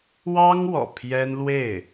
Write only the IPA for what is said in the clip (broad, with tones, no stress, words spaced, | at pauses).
wɑ˥ŋ wɔ̰˨˩pʰjɛ˥n lwe˥˩ɪ̯